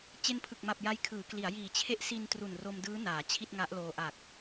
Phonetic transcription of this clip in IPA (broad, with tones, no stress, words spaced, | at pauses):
t͡ɕe˦˥npʰɯ˨˩k̚ma˨˩p̚ ja˦˥jkʰɯː˩˦kli˩˦a̯ jiː˨˩ t͡ɕʰe˦˥ʔsi˧n tru˨˩nro˧mdɯː˦˥ naː˩˦t͡ɕʰi˥˩t̚ŋa˦˥ʔloː˧ ʔa˨˩k̚